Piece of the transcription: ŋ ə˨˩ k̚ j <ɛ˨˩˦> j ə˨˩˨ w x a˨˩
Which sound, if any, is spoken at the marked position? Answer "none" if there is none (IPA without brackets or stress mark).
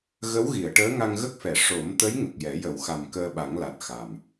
ɛ˨˩˦